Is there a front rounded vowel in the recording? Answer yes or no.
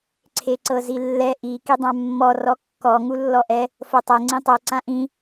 no